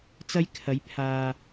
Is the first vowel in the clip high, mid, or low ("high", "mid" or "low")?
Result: low